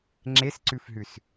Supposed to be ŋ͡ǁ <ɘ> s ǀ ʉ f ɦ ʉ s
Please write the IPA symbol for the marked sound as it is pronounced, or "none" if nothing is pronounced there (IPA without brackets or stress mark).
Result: e